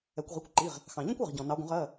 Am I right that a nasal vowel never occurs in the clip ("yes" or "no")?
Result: no